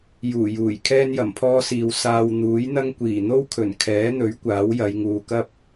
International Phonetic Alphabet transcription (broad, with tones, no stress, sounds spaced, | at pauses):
j uː˨˩ j uː˨˩ j kʰ ɛː˥ n j ɐ˨˩ m pʰ ɔː˥ s iː˨ w s aː˧ w n̪ uː˨˥ j n̪ ɐ˥ ŋ kʷ iː˨˩ n̪ o˥ w kʰ ɵ˨˩ n kʰ ɛː˨˥ n̪ ɵ˨˥ ɥ kʷ aː˨˥ w j ɐ˨˧ j ŋ uː˨ k ɐ˥ p̚